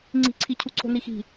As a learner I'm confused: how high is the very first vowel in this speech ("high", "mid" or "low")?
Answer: high